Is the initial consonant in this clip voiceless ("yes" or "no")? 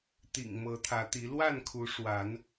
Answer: yes